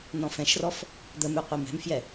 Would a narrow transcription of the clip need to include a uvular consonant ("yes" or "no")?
yes